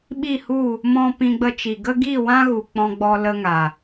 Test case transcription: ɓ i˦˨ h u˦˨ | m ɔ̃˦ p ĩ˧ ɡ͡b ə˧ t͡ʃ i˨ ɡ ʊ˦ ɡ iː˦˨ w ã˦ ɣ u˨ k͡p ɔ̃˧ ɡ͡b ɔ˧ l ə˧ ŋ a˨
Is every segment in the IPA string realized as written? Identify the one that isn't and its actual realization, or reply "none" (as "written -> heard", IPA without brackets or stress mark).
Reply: ʊ˦ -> ə˦